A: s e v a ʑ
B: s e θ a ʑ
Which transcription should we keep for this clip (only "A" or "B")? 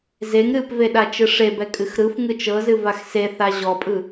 B